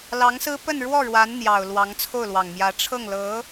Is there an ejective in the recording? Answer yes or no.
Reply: no